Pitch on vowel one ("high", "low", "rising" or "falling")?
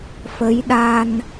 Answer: rising